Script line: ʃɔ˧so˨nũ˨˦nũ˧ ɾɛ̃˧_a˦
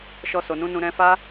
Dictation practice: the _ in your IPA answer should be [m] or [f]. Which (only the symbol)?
f